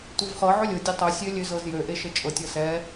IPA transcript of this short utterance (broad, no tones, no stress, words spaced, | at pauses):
tʷɤvχɤ ʕɵlʲʊ dʲøtˤɵ sʲølʲøzɤzjø ʔeʃət͡ʃʼɤtʲ ɤsɛ